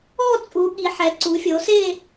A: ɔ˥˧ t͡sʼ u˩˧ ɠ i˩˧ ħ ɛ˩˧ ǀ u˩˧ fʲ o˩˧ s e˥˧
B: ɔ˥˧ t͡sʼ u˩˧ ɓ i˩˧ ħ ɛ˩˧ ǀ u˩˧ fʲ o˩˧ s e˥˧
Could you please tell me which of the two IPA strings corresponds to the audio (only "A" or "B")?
A